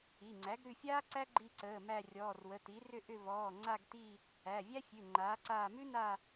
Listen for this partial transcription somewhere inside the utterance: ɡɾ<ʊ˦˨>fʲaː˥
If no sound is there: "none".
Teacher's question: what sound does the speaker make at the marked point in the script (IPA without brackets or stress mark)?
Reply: ʉ˦˨